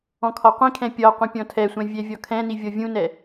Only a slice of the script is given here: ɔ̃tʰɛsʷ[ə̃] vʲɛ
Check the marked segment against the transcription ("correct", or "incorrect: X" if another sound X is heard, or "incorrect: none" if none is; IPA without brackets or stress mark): incorrect: ɛ̃